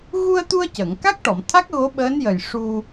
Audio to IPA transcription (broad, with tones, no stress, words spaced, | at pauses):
ɣu˧ə̯t̪u˧ə̯ cə˨˩˨ŋ ka˦˥k̚ʈɔ˨˩˨mt̪ʰa˦˥k̚ ɣo˧˥ɓəː˧˥n jə˨˩j ʂu˧